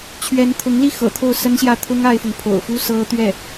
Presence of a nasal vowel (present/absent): absent